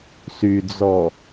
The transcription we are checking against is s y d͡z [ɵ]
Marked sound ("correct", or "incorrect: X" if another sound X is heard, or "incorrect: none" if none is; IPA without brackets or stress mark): incorrect: ɔ